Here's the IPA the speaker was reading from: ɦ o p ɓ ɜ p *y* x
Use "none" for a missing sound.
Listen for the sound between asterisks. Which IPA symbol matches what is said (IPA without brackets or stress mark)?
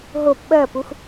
u